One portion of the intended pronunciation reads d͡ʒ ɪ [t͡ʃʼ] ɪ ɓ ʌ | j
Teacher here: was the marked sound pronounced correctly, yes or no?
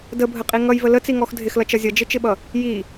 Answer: no